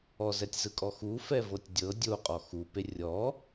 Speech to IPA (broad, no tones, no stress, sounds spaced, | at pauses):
ɔ z ɛ tʲ z ɯ kʼ ɔ x u f ɛ v ɤ tʲ dʲ ɤ dʲ o qʼ ɔ x u p e rʲ ɔ